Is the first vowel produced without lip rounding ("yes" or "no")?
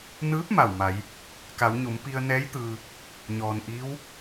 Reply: yes